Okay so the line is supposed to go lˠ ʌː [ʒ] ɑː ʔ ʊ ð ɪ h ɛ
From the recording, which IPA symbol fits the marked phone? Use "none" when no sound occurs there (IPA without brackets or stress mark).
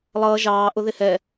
ʒ